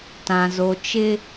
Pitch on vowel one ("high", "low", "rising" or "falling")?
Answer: low